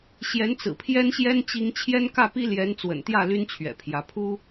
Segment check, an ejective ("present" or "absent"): absent